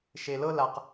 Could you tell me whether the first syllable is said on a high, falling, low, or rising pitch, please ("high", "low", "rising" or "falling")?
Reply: low